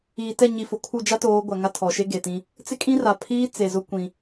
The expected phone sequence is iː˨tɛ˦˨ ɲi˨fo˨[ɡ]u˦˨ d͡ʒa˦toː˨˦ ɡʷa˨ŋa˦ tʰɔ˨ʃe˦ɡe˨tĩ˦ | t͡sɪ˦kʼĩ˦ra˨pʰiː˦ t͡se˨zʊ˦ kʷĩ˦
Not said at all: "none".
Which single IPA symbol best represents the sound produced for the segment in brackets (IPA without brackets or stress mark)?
kʰ